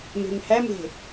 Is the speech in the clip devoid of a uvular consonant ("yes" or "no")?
yes